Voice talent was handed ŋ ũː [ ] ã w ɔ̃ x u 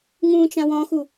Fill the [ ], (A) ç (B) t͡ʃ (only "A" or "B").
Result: B